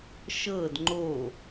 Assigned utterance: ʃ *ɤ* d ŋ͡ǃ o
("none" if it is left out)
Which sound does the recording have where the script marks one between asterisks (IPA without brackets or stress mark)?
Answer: ɤ